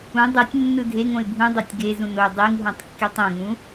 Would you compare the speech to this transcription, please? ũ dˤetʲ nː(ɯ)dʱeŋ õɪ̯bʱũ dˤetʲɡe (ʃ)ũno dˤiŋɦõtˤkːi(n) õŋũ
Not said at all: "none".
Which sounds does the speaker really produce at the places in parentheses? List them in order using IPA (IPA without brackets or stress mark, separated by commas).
ɯ, z, tˤ